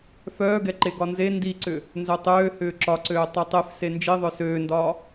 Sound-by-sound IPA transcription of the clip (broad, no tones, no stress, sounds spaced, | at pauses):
f œː ɡ ɛ ǃ e ɡ ɒ n z e n d i ǀ ʏ | n z œ tˤ øː h ʏː ǁ ɒ ǀ øː tˤ ɛ tˤ e f s e n d͡ʒ i ðˤ œ s øː n d ɒː